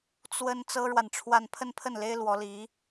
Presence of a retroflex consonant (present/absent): present